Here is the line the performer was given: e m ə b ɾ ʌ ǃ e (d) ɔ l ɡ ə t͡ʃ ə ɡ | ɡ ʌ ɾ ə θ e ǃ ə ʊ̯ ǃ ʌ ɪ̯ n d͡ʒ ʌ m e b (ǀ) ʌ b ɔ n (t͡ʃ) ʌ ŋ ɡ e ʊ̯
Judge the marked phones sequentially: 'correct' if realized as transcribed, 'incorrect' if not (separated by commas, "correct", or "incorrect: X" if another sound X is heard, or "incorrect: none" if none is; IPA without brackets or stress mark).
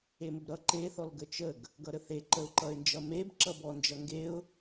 incorrect: θ, incorrect: ǁ, incorrect: d͡ʒ